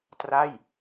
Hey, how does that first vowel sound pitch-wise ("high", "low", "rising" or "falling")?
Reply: falling